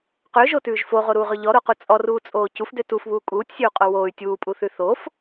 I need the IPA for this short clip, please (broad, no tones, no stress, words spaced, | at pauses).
qøʒotʉːʒ foʁoɾuːʁø ʎɔɾoqu t͡sʼɔruːt͡sʼoː cufdø tufβuː kʼuːtʲsʲøu̯qʼo woːy̯ tʲuːpʼuθʉ θof